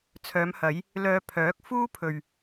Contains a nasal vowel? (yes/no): no